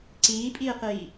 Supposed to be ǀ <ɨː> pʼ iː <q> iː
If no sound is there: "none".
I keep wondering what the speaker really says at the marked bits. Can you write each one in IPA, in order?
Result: iː, q

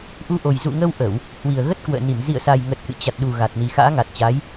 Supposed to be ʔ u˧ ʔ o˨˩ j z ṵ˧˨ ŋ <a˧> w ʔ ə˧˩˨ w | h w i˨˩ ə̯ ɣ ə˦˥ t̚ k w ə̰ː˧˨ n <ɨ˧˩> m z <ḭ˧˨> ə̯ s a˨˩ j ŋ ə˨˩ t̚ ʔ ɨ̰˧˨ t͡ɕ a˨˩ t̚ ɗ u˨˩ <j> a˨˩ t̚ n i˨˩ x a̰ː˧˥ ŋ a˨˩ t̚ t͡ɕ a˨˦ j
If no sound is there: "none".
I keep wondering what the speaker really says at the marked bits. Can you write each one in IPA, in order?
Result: ə˧, i˧˩, ḭ˧˨, ɣ

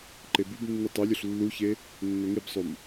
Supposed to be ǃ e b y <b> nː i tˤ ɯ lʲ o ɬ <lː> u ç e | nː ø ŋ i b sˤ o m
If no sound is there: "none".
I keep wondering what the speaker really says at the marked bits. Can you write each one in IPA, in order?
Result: b, lː

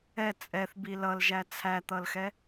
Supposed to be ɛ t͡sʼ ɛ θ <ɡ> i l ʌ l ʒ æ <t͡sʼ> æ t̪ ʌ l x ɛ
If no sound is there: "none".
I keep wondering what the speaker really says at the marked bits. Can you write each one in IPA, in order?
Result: b, t͡sʰ

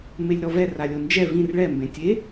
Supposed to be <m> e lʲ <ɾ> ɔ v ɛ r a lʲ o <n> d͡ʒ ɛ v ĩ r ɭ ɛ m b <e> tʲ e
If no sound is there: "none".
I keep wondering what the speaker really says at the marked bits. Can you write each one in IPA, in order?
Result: m, ɾ, n, ẽ

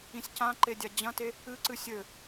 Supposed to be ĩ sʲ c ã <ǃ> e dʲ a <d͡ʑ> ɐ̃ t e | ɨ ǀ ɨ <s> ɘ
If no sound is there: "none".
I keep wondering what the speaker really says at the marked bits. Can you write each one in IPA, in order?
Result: ǃ, d͡ʑ, sʲ

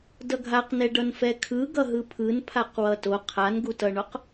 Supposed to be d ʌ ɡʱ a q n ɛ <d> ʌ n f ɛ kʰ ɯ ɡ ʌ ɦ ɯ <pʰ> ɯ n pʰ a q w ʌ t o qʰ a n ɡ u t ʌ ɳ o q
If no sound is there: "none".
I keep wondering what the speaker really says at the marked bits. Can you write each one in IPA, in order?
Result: ɖ, pʰ

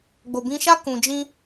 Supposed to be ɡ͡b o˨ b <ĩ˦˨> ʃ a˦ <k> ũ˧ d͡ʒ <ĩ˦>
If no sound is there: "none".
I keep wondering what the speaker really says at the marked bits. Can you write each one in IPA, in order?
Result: ĩ˧, k, ĩ˦

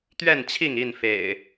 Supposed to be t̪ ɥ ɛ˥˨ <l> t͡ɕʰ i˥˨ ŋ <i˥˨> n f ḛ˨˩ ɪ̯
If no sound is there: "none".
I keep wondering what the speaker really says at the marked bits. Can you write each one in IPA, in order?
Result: n, i˥˨

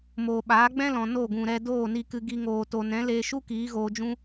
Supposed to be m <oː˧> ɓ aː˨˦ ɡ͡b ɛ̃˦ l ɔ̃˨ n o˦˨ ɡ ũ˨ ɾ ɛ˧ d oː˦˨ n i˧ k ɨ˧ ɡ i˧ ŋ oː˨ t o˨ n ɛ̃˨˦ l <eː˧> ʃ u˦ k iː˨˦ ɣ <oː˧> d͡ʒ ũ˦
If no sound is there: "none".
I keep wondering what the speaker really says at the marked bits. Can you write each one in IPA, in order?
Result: oː˨, eː˧, oː˧

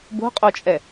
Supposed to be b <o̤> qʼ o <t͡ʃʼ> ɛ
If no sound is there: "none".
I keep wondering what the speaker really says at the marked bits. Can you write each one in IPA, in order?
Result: o̤, t͡ʃʼ

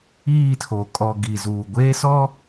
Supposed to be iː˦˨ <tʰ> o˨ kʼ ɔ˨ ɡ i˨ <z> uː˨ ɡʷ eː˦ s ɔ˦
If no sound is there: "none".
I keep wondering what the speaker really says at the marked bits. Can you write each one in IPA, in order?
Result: tʰ, z

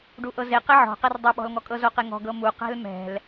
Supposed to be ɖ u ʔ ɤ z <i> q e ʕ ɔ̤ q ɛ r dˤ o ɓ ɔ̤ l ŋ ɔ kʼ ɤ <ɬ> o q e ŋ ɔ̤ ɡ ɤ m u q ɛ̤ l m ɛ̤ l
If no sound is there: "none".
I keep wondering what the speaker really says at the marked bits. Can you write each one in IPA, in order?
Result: e, z

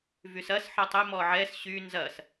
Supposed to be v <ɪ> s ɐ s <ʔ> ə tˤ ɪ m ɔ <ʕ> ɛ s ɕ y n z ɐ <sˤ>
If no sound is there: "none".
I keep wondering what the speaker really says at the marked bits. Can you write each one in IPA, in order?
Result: y, ħ, ʕ, s

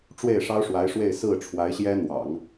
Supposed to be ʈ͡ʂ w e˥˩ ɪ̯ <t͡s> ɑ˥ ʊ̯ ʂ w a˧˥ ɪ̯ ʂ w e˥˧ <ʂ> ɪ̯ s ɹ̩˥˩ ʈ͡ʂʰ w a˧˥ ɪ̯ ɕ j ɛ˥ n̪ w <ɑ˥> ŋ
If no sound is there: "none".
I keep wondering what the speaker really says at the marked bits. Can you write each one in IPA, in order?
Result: ʂ, none, ɑ̰˨˩˦

